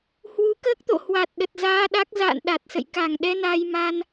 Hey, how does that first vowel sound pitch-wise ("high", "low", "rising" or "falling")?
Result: rising